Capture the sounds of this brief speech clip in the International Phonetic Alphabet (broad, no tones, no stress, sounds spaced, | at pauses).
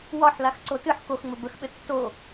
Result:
w ɒ ħ l a x ǀ o t ɨ ħ k o x ŋ͡m ɘ b ə x ɓ ɘ tː o